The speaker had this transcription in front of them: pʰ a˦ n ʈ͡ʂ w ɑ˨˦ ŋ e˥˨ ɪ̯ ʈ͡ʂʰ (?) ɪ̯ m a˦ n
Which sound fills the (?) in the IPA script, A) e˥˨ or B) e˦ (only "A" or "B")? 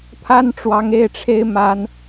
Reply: B